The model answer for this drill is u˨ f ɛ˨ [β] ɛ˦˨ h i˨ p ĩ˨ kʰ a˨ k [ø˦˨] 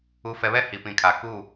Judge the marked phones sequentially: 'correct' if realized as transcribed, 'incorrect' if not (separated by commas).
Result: correct, incorrect